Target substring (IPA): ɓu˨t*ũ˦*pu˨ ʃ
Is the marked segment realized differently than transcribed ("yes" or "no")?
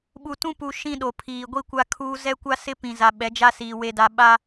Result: no